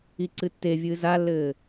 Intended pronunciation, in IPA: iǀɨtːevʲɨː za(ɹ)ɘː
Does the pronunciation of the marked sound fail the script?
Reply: yes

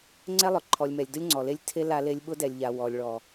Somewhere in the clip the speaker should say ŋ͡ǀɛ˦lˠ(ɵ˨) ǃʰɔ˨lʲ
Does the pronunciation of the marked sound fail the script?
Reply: yes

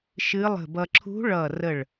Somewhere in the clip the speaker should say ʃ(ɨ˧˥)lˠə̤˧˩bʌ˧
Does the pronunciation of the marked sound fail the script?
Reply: no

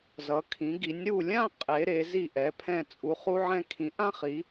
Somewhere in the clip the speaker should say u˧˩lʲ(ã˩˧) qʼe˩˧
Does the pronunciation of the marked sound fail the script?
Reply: yes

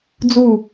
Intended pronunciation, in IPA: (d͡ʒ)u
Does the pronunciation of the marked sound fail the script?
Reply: yes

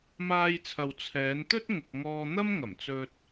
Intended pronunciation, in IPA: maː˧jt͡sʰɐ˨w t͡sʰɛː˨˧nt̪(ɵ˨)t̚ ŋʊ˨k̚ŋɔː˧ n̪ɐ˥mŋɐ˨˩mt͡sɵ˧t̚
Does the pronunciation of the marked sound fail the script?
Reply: yes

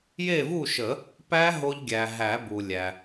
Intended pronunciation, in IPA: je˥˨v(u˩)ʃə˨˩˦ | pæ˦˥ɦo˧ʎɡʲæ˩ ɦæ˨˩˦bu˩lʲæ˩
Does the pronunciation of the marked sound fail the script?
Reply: yes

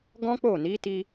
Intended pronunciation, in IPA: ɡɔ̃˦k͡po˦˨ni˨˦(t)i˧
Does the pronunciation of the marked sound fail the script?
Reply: no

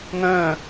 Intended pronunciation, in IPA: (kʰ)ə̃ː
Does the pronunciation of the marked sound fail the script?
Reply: yes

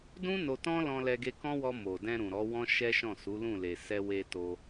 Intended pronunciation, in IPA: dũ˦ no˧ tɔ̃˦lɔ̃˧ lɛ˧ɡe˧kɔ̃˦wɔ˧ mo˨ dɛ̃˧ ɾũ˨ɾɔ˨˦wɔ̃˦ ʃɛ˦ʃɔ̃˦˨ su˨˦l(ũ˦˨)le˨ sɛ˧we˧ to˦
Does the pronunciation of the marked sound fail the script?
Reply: no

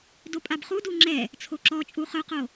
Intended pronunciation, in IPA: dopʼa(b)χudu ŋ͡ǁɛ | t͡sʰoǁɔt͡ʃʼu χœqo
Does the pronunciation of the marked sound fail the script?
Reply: no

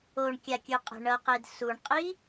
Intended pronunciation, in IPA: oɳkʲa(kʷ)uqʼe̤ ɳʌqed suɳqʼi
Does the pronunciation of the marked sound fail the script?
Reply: yes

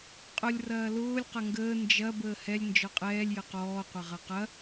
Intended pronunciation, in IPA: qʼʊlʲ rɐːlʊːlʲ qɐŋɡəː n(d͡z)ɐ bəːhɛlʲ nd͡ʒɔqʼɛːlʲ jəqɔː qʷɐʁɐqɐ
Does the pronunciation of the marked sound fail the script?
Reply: yes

